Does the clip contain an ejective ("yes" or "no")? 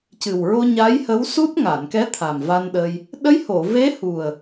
no